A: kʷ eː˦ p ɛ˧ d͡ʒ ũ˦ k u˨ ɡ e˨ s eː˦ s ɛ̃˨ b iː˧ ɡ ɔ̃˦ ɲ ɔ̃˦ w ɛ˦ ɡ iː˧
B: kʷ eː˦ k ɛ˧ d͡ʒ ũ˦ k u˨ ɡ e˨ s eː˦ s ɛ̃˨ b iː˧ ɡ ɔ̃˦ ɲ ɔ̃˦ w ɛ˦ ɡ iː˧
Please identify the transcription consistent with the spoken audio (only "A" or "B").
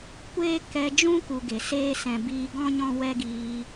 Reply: B